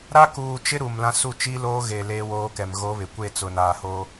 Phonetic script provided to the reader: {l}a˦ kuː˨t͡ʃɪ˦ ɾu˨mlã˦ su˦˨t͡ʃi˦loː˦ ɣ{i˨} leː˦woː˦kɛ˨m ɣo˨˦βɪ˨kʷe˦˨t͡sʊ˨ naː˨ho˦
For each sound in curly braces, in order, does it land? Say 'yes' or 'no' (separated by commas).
no, no